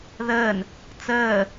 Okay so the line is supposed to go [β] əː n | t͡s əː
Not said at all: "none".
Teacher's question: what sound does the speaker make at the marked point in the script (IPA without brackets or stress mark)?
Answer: ð